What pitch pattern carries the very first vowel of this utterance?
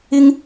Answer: high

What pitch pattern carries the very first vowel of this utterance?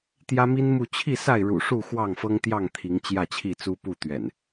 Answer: high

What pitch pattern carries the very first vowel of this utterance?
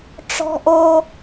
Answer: high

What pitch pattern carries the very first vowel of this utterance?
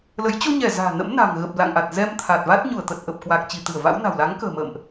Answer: rising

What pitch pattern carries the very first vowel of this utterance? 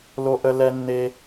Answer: high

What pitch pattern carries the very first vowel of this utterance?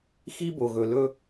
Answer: high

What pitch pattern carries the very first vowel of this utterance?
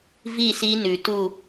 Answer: falling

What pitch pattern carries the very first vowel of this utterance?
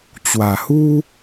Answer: low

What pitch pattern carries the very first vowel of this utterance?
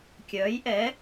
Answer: rising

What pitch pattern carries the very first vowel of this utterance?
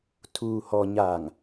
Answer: low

